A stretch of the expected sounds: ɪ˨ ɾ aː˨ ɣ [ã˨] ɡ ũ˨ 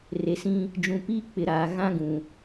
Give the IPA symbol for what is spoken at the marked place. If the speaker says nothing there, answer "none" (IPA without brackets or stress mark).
ã˦